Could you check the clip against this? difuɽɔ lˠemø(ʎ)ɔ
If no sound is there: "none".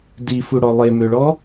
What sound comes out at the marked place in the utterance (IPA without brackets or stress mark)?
ɭ